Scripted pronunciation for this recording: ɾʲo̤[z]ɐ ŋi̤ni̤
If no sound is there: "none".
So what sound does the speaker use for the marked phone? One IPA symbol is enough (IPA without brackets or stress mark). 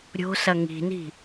s